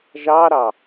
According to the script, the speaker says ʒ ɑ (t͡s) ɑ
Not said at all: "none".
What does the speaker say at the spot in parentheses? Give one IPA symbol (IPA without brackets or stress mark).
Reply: ɾ